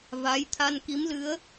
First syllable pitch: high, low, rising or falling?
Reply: rising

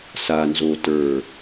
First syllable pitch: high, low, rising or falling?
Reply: low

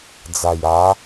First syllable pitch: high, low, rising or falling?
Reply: low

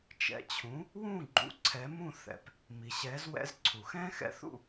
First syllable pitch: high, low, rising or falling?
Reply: rising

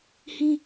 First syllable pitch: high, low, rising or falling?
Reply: high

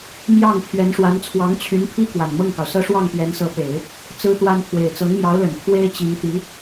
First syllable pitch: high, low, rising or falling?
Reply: falling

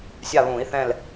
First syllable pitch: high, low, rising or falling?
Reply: falling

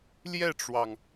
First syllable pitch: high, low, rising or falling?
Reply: falling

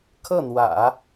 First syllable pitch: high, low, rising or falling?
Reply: falling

